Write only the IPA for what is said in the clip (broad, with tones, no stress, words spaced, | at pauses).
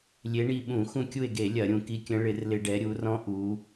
lʲe˧˥ɳi˦˨ ɓũ˧˩˧xũ˦˨kʲu˦˨e̯ɡe˧˩˧ lʲɐ˧˩˧ɾʲũ˩˧ ki˧˥kʲə̃˧˥ ɭɪ˧˩˧rlɪ˧˩˧ ɖɛ˩˧ɾʲu˩˧rɔ̃˧˥ ʔu˩˧